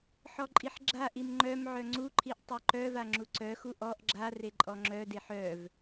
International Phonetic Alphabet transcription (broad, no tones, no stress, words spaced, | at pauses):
ħɔǃʼiħɡ͡ǁaʔim ŋ͡ǃœm ʕœŋ͡ǀuǃʰiʔ tˤœǃœva ŋ͡ǁuǀœxu ʔɔʔ ɡ͡ǁare ǃʼɔŋ͡ǁœdeħ œv